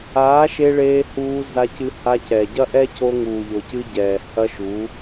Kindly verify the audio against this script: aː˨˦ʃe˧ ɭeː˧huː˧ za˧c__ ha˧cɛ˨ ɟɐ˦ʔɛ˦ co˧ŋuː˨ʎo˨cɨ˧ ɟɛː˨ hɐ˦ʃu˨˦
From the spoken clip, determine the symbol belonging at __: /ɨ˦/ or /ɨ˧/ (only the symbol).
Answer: ɨ˧